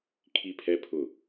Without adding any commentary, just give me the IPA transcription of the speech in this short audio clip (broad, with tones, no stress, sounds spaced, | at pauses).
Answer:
kʰ i˦ pʰ ɛ˦ pʰ ʊ˦˨